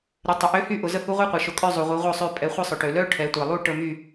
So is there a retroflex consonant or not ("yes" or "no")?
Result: yes